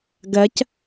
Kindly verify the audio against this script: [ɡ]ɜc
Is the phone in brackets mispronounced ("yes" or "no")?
no